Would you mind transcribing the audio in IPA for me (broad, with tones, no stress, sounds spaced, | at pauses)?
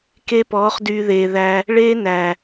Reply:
k e˦ p ɔː˨˦ χ d yː˧ ð eː˨ ð æ˧ | ɭ eː˦ n æ˨